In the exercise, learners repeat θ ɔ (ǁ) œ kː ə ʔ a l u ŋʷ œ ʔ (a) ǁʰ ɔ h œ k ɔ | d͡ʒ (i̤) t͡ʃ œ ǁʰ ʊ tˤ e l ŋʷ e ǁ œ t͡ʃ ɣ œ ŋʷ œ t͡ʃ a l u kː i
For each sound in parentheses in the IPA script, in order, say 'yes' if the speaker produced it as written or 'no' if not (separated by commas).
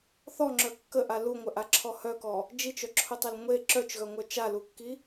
no, yes, no